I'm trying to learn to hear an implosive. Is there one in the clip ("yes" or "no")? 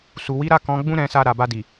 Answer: no